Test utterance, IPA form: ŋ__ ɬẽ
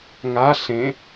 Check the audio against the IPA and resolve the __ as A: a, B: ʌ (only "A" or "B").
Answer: A